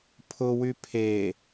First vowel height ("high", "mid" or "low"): high